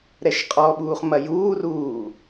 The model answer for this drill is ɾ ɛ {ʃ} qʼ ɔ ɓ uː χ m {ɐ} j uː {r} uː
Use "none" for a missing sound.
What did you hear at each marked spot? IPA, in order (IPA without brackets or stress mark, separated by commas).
ʃ, ɐ, r